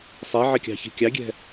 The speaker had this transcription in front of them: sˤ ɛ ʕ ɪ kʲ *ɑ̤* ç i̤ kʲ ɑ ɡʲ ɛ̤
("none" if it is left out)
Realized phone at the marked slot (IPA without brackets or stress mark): ɑ̤